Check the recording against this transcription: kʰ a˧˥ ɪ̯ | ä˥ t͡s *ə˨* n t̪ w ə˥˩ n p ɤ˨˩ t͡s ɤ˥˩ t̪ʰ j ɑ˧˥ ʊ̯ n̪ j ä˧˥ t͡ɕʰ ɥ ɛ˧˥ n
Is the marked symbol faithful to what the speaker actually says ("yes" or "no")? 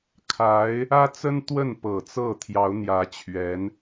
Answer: no